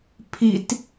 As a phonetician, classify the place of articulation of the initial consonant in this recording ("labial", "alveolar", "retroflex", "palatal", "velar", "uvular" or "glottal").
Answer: labial